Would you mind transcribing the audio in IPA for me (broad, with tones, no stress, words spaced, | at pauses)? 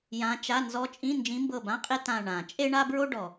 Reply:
jã˧˥t͡ʃa˧˥˧ nzɔ˧˥t͡ʃʼĩ˧˥˧ nd͡ʒĩ˧˥mbɤ˦˨bã˧˥˧qʼe˥ tã˦˨ɳã˨˩˦ t͡ʃʼe˥ɳa˥bɹo˥ɖɔ˨˩